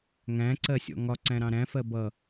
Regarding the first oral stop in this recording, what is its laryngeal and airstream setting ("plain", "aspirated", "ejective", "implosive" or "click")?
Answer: click